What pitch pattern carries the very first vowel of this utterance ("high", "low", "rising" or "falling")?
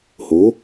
rising